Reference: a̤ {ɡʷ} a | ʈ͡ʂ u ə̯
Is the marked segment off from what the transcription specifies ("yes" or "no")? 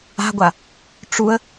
no